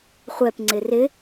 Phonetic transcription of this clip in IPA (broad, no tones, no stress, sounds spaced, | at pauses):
χʷ ɛ p ŋ͡ǀ ɪ r ɪ